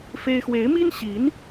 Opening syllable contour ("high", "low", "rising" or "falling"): high